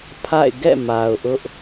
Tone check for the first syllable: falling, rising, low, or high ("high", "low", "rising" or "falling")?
falling